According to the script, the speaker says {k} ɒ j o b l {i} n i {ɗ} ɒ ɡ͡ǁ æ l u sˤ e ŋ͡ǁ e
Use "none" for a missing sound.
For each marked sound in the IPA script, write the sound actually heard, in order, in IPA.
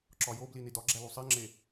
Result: ǁ, i, d

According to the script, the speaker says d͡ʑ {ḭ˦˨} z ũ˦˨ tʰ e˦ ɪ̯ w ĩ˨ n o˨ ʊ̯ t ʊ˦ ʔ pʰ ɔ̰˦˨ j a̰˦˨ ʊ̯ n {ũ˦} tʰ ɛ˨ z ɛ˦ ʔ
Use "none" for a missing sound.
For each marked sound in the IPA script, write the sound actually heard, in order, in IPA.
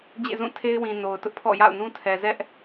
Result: ḛ˦˨, ũ˦

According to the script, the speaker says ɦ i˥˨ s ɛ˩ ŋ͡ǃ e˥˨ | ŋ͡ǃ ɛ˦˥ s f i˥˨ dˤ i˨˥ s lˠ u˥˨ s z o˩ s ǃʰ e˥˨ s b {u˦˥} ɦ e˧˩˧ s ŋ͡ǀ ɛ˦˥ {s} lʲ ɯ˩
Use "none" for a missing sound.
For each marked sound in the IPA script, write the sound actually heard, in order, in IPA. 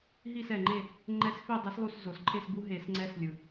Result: u˦˥, s

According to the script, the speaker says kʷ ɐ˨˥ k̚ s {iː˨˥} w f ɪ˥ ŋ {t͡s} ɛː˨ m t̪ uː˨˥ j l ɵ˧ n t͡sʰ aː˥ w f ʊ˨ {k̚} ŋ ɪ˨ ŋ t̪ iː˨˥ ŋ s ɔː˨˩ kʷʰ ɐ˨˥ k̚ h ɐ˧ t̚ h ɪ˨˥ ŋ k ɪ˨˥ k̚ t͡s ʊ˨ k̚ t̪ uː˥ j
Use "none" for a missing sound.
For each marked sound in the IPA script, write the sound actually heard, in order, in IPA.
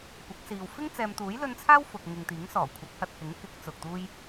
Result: iː˨, t͡s, k̚

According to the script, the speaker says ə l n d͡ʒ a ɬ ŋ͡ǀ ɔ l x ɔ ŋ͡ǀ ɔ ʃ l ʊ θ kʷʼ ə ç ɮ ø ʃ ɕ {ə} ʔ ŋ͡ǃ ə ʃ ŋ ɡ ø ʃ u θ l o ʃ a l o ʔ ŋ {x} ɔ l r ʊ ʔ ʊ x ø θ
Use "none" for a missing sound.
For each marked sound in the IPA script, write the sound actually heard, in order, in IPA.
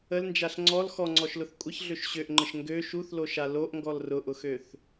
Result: ø, ɡ

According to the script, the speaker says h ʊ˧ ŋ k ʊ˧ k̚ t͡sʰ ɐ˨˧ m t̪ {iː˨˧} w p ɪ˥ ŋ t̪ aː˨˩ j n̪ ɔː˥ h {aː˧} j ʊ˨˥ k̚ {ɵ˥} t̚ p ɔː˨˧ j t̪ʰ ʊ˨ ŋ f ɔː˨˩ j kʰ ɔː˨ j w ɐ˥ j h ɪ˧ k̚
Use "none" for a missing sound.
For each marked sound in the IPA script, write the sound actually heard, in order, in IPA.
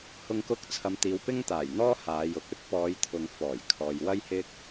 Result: iː˨˧, aː˨˧, ɵ˥

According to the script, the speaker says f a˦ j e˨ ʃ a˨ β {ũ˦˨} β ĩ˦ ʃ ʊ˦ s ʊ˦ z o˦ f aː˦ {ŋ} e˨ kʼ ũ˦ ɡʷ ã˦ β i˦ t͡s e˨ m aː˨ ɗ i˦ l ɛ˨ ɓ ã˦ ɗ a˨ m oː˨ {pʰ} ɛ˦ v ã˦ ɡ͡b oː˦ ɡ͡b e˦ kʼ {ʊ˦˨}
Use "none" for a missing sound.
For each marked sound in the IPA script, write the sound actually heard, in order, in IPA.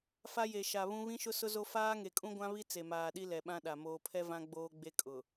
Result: ũ˦, ŋ, pʰ, ʊ˨

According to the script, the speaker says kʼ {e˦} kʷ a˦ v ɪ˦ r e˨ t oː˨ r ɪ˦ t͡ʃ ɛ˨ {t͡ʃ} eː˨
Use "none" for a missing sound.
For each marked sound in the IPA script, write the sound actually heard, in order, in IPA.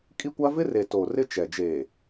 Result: i˦, d͡ʒ

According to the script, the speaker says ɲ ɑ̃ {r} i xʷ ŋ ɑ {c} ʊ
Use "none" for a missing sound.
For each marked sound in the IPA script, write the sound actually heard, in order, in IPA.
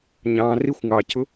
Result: r, c

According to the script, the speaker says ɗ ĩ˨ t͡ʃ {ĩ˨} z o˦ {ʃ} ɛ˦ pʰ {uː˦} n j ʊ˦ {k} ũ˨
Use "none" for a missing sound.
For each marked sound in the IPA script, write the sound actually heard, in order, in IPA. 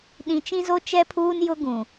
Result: ĩ˦, t͡ʃ, uː˦, ɡ

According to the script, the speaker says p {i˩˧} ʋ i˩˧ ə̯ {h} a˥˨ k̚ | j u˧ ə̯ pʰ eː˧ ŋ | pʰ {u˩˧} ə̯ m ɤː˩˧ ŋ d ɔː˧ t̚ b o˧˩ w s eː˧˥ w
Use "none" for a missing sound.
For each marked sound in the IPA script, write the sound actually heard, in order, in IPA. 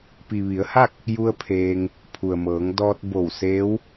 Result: i˩, h, u˩

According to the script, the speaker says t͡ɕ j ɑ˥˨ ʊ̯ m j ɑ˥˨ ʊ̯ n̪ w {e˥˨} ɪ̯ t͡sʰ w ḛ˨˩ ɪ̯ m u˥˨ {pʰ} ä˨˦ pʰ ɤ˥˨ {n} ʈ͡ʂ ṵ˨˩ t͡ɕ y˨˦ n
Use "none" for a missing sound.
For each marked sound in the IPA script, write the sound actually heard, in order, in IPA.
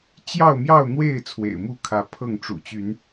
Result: e˥˨, kʰ, ŋ

